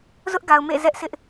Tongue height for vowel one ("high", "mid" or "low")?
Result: high